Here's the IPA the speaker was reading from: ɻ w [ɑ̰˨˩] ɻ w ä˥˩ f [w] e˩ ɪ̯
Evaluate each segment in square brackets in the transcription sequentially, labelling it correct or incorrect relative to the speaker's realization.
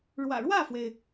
incorrect: ä̰˨˩, correct

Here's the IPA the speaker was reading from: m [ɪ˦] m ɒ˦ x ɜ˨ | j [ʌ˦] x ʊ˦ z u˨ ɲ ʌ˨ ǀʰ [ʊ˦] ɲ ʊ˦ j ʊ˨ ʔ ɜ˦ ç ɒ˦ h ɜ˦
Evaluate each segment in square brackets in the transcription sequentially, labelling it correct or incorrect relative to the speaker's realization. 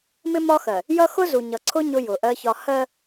correct, correct, correct

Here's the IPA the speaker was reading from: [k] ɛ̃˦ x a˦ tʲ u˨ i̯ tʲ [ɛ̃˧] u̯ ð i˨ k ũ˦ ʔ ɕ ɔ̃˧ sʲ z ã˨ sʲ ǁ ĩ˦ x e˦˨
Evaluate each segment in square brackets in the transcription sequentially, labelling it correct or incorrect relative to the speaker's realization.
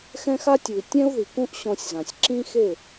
incorrect: x, incorrect: ɛ̃˦

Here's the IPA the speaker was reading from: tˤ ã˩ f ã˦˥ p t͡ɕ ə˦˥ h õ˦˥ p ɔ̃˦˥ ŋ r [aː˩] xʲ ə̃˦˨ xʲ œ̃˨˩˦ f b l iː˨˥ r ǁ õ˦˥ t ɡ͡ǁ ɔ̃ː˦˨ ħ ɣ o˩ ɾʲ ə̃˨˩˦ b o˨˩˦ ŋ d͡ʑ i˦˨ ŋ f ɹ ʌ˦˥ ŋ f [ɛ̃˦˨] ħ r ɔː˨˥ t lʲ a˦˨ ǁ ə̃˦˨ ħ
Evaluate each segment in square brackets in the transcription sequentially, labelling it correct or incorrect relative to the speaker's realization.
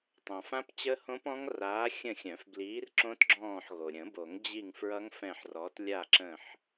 incorrect: aː˨˥, correct

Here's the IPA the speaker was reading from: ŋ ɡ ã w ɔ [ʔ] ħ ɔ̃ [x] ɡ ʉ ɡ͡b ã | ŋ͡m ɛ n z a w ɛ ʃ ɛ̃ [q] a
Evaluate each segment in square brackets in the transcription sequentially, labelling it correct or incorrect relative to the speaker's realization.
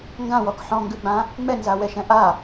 incorrect: k, incorrect: ŋ, incorrect: ʔ

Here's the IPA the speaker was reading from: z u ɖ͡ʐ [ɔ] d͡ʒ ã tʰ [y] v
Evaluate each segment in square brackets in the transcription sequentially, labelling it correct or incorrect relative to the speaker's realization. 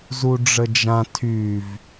incorrect: ə, correct

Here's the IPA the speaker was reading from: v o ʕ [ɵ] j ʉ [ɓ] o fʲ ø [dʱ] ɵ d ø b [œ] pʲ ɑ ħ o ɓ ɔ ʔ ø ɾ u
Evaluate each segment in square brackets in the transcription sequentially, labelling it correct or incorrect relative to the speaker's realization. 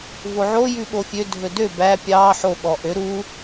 incorrect: o, correct, correct, incorrect: æ

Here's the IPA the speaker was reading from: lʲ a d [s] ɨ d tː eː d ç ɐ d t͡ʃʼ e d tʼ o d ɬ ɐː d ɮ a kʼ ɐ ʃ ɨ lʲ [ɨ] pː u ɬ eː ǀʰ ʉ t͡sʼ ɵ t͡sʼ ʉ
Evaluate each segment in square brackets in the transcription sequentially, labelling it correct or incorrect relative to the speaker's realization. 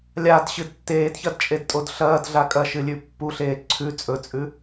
incorrect: ɕ, incorrect: ʉ

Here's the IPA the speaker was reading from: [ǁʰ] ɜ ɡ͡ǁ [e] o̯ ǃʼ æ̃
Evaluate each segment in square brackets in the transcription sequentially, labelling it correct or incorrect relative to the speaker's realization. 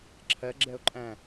correct, incorrect: ɛ

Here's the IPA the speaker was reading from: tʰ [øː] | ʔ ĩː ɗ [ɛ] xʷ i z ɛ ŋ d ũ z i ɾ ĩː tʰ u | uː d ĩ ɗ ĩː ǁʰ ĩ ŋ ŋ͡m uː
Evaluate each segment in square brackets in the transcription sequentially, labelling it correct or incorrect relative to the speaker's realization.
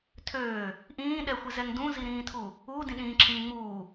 correct, correct

